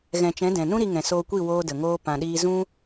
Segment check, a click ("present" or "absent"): absent